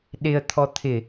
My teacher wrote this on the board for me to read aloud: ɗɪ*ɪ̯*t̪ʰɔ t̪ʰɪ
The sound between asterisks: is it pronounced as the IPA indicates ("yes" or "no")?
no